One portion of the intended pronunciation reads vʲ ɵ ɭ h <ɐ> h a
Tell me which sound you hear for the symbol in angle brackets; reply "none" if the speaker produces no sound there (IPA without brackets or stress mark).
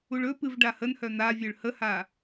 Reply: ə